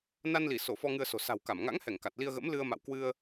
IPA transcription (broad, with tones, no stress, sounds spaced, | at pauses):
n a˧ n l i˧˩ s o˧˩ f ɔ˧ ŋ ɨ˧ ə̯ s o̤˨˩ s a̤˨˩ w k a˧˩ m ŋ a̰˧˥ ŋ h ɛ˧˩ ŋ k a˨˩ t̚ l i˧ ə̯ ɣ ə̰˧˥ m l ɨ˧ ə̯ m a̰˧˨ w k w ɨ˧ ə̯